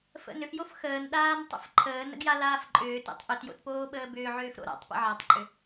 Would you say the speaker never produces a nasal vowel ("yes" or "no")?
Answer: yes